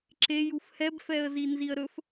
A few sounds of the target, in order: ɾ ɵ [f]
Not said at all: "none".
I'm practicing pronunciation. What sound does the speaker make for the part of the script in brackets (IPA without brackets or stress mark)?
f